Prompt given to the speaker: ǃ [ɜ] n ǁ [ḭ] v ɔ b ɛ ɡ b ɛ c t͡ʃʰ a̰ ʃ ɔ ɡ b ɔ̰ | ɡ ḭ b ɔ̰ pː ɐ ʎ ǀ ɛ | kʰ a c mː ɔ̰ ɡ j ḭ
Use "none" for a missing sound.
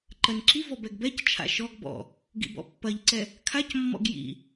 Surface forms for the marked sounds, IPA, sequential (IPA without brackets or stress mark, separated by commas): ɜ, i